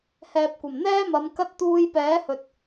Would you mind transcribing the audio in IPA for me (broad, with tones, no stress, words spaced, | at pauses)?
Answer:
hɛː˨p̚kʷɐ˨˩m n̪ɛː˥mɐ˨˧mkɐ˥t̚ t̪uː˧jpɛː˨˥hɵ˨t̚